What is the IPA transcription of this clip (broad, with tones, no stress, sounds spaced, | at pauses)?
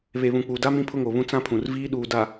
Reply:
β e˨ β ũ˨ k͡p uː˨ d a˦ m ĩ˦ pʰ ʊ˦ ŋ o˨ β ũ˦ t͡s ã˦ pʰ ũ˨ r v iː˦ ɗ uː˨ d a˨